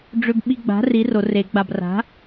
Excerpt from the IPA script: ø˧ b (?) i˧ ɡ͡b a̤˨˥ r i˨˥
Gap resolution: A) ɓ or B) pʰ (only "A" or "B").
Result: A